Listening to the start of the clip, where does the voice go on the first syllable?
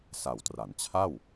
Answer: low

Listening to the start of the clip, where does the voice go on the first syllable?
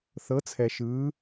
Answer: rising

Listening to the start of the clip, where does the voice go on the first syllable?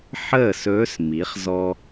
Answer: falling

